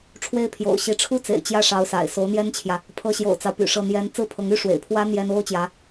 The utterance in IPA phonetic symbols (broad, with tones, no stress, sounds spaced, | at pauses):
ʈ͡ʂʰ w e˥˩ ɪ̯ pʰ j o̰˨˩ ʊ̯ ɕ i˧˥ ʈ͡ʂʰ u˥ t͡s ḛ˨˩ ɪ̯ t͡ɕ j ä˥˩ ʂ ɑ˧˥ ʊ̯ s a̰˨˩ ɪ̯ s o˧˥ ʊ̯ n̪ j ɛ˥ n t͡ɕʰ j ä˨ | pʰ ɤ˧˥ ɕ j o̰˨˩ ʊ̯ t͡s ɑ˦ ʊ̯ p y̰˨˩ ʂ ɤ˥˩ n̪ j ɛ˥ n t͡s ɹ̩˥ pʰ ɤ˧˥ ŋ y˥ ʂ w ḛ˨˩ ɪ̯ pʰ w ä˥ n̪ j ɛ˥ n o˥ ʊ̯ t͡ɕ j ä˧˥